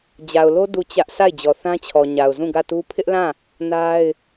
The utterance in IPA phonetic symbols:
d͡ʑ a˨ ʊ̯ l o˦ d u˦˨ t͡ɕ ä˦ ʔ sʰ a˦˨ ɪ̯ d͡ʑ ɔ˨ θ ã˦ t͡ɕʰ ɔ˨ ɲ a˨ ʊ̯ z ũ˦˨ ɡ ä˦˨ t u˦ pʰ ɪ˦ ʔ l ã˦˨ | n a˦ ɪ̯

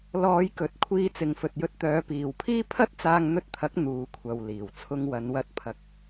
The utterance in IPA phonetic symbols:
l ɔː˨˧ j k ɵ˨ t̚ kʷʰ iː˧ t͡s ɪ˨ ŋ f ɵ˨ t̚ j ɵ˧ t̚ t̪ œː˨˧ p iː˨ w pʰ iː˥ pʰ ɐ˥ t̚ t͡s aː˧ ŋ n̪ ɵ˧ t̚ t̪ʰ ɐ˨˥ k̚ n̪ uː˨˧ kʷʰ ɐ˨ w l iː˨˩ w t͡sʰ ʊ˧ ŋ w ɐ˨˧ n w ɐ˧ t̚ pʰ ɐ˨ k̚

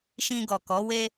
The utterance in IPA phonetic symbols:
ʃ ĩ˧ ɡ ɔ˨ k ɔ˨˦ w e˦

